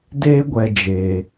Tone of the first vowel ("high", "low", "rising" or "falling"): high